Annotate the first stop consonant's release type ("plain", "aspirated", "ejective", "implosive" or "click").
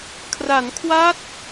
aspirated